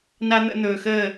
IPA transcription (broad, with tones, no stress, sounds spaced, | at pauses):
n a˦ n̪ ə̰˧ n̪ ɵː˨ x əː˦˨